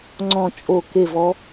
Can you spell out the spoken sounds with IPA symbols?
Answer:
ŋ͡ǀɔ̃˥˨t͡ʃʼo˥˨ ke˥˨vɔ˦˥

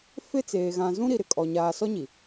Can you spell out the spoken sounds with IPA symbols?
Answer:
fɪ˦t͡seː˨ ɣã˨zũ˦ɾi˨ ɾɪ˨kʼɔ˨ ɲaː˨sɔ˦ɲi˨

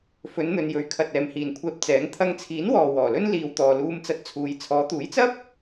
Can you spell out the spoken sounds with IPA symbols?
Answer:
fɵ˨˧nn̪ɵ˨njɵ˨˧ɥkʰɐ˨t̚ ɛː˨mhiː˨nkʷʰɛː˧p̚t͡sɛː˨˧ŋ t̪ʰɐ˧ŋt͡sʰiː˨˥nwɔː˨ wɔː˨˩lɵ˥n liː˨wt̪ɔː˨luː˧m t͡sɐ˧t̚t͡sʰuː˨˧j t͡sʰɔː˨˧t̪uː˨˥jt͡sɐ˥p̚

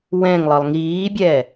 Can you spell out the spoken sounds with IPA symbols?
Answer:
wɛ̃ŋlˠɤlˠ ŋiːbʲɛ

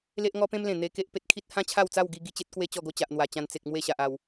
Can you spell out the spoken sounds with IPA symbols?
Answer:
le˦ʔŋɔ˦pẽ˦mlẽ˨˩ n̪e˧ke˦ʔ pe˨t̚kʰi˦t̚ hã˦t͡ɕʰa˥˧wt͡sa˥˧wɡi˧ ɡi˧t͡ɕe˦t̚kwe˦ t͡ɕɔ˥˧ɡo˦t͡ɕa˨ʔ n̪wa˨˩t͡ɕã˧n t͡se˨k̚ mwe˥˧ɕa˨ʔa˨˩w

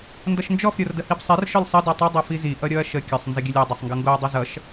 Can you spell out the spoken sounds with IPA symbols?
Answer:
ndʌʃnd͡ʒɔf ɾʲordəhibsˤer ʃɔlʲsˤə dɔtˤʌ dˤofizi ʔʌɾʲɔɐ̯ʃə kʲəsˤ nzəɡʲəlʲe dˤesˤŋɡʌŋɡoɐ̯ dˤʌzʌʃ

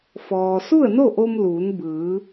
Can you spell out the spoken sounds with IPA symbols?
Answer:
fɔː˩su˥˨ə̯no˥˨ʔo˧m luː˩˧nbɯː˩˧

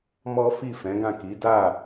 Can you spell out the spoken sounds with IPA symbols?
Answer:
mɔ˦ fi˦˨fɛ̃˨˦ɡã˦˨ ki˨˦ da˦˨

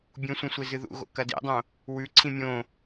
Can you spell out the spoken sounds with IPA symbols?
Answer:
bʲũsʷĩ sʷezɨðṵɣo̰ kɐdḭdˤõ | wʉǀʰĩ mʲõ

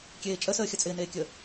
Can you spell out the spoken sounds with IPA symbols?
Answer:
kʲeːt͡ʃʼəsəː xʲət͡sʼɪːneːkʲəː

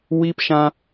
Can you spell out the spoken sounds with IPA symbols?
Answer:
wiː˦pʃã˦

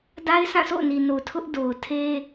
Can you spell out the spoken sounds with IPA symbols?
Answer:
da˦ɪ̯sʰã˦˨so̰˦˨ʊ̯ni˨ no˨ tʰʊ˦ʔ do˨ʊ̯ tʰe˦

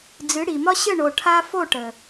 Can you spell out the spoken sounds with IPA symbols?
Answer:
d͡zɨ˨˦ ɽi˨mɒ˦ ɕə˦˨ɳo˨ ʈʰa˦ fo˦˨ʈə˨

